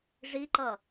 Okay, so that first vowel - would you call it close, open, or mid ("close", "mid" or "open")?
close